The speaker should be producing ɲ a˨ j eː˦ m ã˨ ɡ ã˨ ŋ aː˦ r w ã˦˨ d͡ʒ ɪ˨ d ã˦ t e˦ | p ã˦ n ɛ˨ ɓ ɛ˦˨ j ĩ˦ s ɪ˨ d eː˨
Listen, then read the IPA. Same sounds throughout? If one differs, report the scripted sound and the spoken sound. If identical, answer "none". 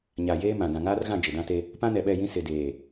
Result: w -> ɣ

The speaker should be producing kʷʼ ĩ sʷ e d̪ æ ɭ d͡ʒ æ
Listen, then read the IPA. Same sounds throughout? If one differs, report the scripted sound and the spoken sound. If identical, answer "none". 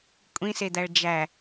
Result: sʷ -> s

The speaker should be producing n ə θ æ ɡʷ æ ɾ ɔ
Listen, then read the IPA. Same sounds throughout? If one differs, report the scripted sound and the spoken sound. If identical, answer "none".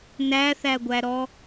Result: ə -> æ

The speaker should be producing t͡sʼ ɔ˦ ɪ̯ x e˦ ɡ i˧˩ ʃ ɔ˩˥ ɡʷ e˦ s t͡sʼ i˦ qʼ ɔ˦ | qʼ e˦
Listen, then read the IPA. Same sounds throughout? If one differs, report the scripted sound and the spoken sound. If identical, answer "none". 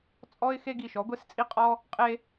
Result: none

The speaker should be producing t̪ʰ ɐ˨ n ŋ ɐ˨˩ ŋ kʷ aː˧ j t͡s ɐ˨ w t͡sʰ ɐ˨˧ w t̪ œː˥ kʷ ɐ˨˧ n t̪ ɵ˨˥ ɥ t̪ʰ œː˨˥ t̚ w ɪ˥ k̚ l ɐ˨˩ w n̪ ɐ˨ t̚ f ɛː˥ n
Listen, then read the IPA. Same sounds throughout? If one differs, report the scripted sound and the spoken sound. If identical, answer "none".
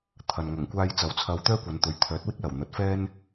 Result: none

